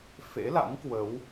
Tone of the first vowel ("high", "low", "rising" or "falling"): rising